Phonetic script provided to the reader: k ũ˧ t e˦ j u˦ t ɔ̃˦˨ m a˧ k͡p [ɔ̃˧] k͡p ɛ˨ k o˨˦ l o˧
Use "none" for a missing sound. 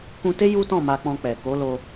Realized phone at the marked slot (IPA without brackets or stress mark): ɔ̃˧